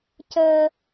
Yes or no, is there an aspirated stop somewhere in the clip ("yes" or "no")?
no